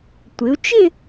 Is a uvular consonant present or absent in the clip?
absent